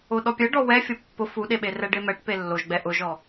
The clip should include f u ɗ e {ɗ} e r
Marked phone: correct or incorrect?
incorrect